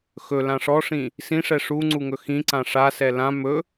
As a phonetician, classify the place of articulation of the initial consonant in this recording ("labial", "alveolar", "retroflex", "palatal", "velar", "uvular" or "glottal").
velar